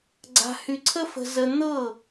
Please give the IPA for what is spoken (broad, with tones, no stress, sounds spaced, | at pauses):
ɡ͡ǀ a̤˧ h y˧ ǀʰ ə˦ f ə̤˧ z ə˧ n̪ ɤ˦˨